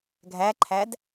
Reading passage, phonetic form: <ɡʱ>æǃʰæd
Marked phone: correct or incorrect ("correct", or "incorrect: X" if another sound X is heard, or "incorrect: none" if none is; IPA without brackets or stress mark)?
correct